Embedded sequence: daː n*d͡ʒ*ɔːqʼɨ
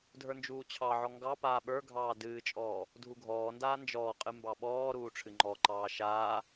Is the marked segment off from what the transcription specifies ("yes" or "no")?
no